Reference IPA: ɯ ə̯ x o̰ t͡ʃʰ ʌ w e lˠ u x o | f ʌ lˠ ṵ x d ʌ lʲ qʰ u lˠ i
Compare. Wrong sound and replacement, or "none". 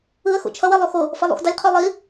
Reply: none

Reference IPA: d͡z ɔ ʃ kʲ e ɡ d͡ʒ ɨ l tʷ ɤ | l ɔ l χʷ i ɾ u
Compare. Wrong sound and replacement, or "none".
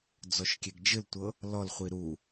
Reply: none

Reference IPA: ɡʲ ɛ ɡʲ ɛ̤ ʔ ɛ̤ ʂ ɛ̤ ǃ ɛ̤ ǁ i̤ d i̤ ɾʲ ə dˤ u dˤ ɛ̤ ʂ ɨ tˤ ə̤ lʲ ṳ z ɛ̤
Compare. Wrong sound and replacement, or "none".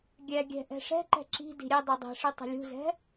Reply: none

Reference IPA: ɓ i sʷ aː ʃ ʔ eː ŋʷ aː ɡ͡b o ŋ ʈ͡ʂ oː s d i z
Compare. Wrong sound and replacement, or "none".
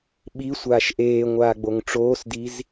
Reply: none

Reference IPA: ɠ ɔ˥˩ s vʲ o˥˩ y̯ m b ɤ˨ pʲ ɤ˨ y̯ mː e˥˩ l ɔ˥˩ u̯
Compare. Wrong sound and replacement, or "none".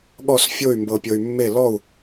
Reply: vʲ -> fʲ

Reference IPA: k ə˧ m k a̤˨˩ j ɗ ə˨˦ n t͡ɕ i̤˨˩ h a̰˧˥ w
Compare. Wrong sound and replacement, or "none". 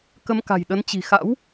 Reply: h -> x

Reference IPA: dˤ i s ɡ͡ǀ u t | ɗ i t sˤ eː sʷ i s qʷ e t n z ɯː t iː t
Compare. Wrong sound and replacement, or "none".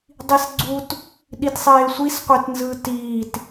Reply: none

